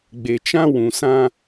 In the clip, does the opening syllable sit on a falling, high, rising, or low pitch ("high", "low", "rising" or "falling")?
low